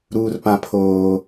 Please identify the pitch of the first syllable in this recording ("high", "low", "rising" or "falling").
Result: low